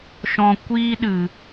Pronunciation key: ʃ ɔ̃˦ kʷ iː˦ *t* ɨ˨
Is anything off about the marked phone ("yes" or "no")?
yes